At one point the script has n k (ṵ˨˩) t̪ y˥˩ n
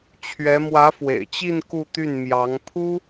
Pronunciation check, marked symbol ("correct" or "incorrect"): incorrect